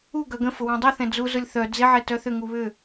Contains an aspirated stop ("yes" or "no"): no